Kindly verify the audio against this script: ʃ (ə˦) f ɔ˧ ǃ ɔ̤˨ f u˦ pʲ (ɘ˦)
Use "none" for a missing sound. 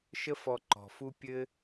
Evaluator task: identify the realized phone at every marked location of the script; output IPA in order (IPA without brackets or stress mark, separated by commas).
ə˦, ɘ˦